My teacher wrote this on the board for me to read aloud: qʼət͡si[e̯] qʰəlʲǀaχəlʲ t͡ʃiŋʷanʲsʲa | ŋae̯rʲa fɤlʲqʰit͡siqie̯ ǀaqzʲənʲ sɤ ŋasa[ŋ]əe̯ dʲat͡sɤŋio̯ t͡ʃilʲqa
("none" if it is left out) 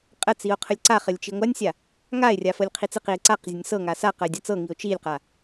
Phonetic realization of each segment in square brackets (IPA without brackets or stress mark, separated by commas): o̯, q